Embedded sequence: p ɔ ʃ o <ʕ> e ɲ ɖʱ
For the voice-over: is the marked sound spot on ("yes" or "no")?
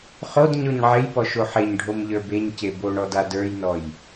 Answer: no